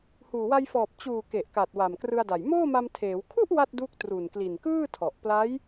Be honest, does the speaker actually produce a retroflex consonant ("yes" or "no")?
no